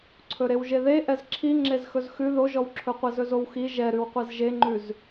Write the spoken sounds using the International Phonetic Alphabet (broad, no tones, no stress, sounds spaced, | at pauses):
ǀʰ ɵ ɾ e w ʒ e ð e ʔ ɛ z ǁʰ i ŋ͡ǁ e z x ɵ z x ʉ ð o ʒ ɔ w ǁʰ ɵ qʷ ɛ z ɵ z o w x i ʒ ɛ ɾ ʉ w qʷ ɛ z ʒ e ŋ͡ǃ ʉ z